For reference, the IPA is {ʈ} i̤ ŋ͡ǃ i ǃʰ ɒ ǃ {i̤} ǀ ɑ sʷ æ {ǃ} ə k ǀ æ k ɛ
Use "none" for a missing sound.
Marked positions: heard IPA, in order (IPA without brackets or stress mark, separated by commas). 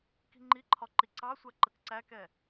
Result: k, i, ǃ